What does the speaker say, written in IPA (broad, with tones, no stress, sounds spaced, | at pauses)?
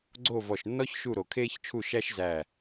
ɡ͡ǀ o˥˨ v ɔ˧˩ ʃ nː ɔ˥ ç ʃ u˥˨ ɾ o˧˩ kʰ eː˥ ç t͡ʃʰ u˥˨ ʃ æ˥ ʃ z æ˧˩